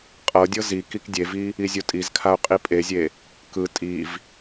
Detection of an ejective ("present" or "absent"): present